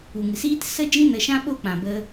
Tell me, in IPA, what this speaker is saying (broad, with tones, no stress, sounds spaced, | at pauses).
u˨ ŋ ɨ˨ s iː˦ t s ə˦ d͡ʒ ĩ˦ n ə˧ ʃ ã˦ ɓ o˦ k͡p ã˨ b ə˧